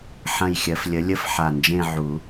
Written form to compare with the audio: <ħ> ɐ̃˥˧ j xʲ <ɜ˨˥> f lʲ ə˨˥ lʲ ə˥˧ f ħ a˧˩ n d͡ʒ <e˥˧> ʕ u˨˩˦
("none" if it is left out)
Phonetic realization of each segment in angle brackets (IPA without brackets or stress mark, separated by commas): ħ, ɜ˨˥, ẽ˥˧